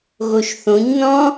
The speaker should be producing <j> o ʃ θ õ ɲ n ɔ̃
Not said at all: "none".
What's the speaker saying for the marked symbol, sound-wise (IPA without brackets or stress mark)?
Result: ɣ